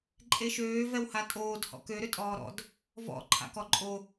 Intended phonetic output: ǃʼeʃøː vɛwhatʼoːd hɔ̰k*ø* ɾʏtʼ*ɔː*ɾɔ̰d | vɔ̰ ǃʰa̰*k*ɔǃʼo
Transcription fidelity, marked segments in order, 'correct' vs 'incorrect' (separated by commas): correct, correct, correct